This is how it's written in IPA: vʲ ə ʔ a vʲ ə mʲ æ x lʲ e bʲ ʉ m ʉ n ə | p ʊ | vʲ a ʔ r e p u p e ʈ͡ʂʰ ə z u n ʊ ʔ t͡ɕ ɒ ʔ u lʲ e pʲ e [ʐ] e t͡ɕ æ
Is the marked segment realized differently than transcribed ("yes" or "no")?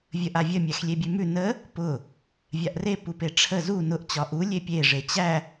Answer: no